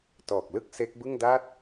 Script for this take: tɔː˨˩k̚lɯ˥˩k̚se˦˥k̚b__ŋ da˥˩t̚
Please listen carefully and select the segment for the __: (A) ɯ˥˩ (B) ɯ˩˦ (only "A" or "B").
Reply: A